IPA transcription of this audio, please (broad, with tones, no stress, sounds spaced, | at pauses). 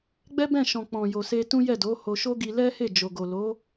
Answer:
ɡ͡b ɛ˦ b ɛ̃˦˨ ʃ ɔ̃˨ k͡p ɔ̃˨ j o˨ s e˧ t ũ˦ j ɛ˦˨ d o˨˦ h o˧ ʃ o˦ ɡ i˧ l ɛ˦ h e˦˨ d͡ʒ o˨ ɡ o˨ l o˨˦